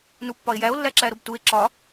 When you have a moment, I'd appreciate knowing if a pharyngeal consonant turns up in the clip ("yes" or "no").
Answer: no